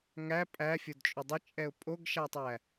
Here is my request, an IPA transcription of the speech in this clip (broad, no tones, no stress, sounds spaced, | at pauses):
ŋ æ pʼ æ fʲ o d t͡ʃʼ ʊ dˤ ə t͡ʃʼ ɛ ʊ̯ pʼ o ɡ ʃ a tˤ æ